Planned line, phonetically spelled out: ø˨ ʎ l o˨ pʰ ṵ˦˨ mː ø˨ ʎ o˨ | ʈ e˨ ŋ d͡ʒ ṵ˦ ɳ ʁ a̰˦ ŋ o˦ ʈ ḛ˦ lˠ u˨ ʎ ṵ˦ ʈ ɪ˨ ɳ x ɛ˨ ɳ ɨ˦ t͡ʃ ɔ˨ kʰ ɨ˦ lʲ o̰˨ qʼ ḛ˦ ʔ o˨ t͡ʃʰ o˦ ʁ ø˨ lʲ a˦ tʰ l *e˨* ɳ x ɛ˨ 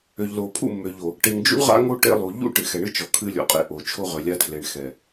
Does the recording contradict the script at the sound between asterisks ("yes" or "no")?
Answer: no